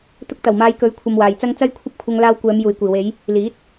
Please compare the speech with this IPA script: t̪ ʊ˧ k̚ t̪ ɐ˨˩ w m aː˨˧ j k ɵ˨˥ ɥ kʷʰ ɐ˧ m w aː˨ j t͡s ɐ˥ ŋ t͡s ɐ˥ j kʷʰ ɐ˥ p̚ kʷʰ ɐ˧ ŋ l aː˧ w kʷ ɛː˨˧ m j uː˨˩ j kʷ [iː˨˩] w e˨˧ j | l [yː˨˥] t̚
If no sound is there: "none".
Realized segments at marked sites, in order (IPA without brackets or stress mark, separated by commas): iː˨˩, iː˨˥